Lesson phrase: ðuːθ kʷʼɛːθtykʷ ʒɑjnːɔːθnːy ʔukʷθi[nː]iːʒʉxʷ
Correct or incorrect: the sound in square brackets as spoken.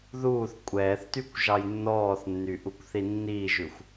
correct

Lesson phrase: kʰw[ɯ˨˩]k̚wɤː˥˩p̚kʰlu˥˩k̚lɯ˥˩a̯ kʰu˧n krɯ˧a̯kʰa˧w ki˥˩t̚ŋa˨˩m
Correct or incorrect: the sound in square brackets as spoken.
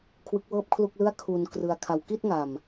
incorrect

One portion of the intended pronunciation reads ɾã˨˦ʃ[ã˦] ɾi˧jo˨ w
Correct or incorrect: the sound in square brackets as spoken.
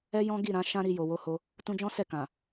correct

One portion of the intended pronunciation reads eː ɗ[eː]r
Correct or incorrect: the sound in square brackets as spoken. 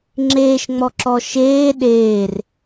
correct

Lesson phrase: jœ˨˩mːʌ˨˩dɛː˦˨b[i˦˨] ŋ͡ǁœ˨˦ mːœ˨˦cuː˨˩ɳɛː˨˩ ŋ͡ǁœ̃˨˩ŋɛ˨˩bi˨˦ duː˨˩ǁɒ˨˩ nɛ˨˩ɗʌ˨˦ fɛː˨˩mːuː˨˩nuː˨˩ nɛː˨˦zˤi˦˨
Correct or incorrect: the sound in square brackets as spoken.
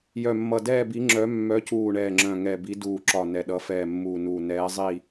incorrect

